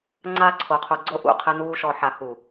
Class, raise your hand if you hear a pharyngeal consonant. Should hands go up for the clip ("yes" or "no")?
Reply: yes